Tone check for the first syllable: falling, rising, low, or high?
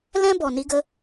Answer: high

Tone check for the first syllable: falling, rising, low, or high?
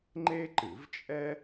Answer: high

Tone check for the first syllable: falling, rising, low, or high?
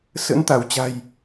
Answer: rising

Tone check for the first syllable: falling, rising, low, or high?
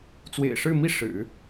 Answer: low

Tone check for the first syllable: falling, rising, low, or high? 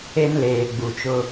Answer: high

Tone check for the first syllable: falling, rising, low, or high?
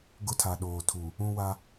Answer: high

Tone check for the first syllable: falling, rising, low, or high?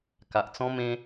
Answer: low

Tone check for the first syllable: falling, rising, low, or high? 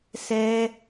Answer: high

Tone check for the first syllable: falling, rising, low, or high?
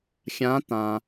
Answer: rising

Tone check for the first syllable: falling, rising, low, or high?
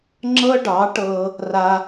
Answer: high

